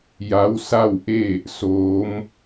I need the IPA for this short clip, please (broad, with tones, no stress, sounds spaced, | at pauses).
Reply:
j a˧˥ w s a˥˨ w ʔ e˥˨ | s oː˧˥ m